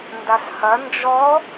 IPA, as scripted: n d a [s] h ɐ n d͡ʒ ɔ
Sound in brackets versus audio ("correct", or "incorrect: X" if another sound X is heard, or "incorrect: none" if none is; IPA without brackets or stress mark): correct